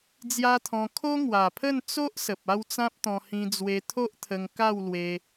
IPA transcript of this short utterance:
d͡zja˦t̪ʰɔ̃˧ kʰo˦ŋwa˨˩pʰə˥˧n t͡so˦ʔ sə˨p̚a˥˧wt͡sã˦p̚t̪ɔ̃˧ hĩ˧d͡zwe˧t̪ʰo˦ʔt̪ʰə˧ŋ ka˥˧wlwe˧

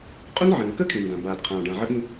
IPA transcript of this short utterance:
qʼu˥nʕə̃ː˩n kəː˥kʰĩː˩ndã˩ baː˩dqʰãː˩ɖã˩ ʕə˥ɠĩ˥

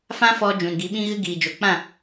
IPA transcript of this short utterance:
fã˦fɔ˧ d͡ʒũ˨nɡi˨˦ɓĩ˦ɣɨ˦ ɡiː˨d͡ʒo˨k͡pã˦˨

